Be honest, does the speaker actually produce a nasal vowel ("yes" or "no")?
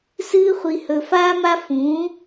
yes